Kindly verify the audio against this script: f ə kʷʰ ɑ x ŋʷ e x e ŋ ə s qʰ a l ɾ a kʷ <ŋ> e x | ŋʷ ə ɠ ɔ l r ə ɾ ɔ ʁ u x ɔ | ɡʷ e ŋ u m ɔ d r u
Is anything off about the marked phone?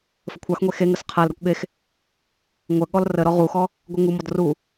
yes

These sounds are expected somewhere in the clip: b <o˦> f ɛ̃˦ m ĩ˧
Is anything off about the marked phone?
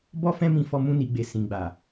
yes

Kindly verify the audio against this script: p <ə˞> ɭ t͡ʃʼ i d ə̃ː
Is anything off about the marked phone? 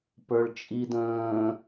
no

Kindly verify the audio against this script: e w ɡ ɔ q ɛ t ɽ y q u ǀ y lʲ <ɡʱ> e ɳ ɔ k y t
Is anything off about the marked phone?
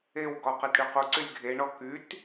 no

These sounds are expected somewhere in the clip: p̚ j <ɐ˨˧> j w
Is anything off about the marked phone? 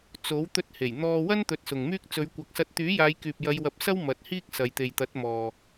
no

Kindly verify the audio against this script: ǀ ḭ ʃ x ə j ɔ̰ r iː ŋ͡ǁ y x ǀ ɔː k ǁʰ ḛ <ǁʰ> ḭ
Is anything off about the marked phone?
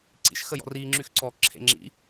yes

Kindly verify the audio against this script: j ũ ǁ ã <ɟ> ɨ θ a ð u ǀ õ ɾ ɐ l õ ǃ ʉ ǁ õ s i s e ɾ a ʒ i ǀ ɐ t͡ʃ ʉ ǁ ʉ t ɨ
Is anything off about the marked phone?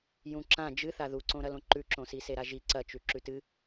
yes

